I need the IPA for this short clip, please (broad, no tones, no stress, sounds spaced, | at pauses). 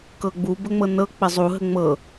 k ɤ ɡ͡b u b ə ŋ͡m ɤ n ɤ k͡p ɘ zˤ u ɦ ə ŋ͡m ɤ